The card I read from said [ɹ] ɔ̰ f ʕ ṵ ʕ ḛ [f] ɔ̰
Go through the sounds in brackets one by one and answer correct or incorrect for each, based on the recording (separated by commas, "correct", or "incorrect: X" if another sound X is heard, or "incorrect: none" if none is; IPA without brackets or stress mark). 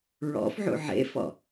correct, correct